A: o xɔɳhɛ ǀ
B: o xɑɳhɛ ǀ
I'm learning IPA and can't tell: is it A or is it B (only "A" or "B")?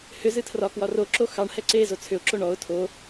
B